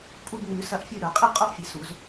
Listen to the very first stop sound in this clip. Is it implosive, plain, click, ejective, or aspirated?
ejective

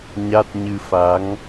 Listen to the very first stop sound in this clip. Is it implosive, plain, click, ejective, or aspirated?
plain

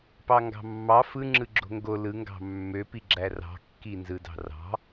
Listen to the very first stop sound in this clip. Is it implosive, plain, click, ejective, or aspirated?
plain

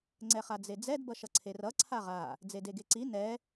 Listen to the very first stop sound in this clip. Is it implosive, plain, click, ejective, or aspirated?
click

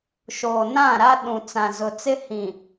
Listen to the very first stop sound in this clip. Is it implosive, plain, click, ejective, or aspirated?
implosive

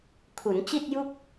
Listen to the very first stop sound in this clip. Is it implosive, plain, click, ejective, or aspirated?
aspirated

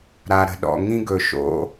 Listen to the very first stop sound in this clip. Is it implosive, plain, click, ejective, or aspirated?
implosive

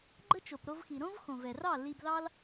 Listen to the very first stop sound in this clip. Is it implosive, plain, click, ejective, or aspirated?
click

